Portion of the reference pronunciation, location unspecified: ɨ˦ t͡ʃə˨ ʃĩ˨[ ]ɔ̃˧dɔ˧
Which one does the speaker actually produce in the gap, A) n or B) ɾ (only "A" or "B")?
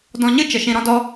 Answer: B